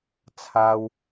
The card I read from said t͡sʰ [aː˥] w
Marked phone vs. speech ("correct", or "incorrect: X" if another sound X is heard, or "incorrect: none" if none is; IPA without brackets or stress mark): correct